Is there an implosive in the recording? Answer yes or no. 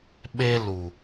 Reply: yes